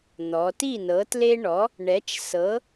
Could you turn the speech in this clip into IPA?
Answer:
n̪ ɔ˩˧ t i˥˩ n ɤ˩˥ t l e˦ ɳ ɔ˩˥ | ɳ ɛ˩˥ t͡ʃ s ɤ˩˥

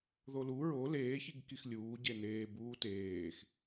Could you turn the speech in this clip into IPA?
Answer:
ð o l u ɹ o l eː ç i ɡ k i x lʲ uː ɟ e n eː b uː t eː x

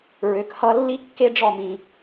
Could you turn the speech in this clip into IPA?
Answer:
ɹ ø˩˧ k h ʌ˧ lː i˥ kː e˥ ɖ͡ʐ ɔ˥˧ m ĩ˧

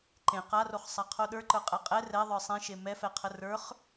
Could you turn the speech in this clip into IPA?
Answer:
ǃ ẽ q a r o χ sˤ a qʰ o ɗ ə˞ ǃ ə˞ qʼ ɛ qʼ ɛ r ɛ ðˤ ə˞ sˤ ẽ ʃ e m ɛ f ɛ qʰ ə r ə˞ χ

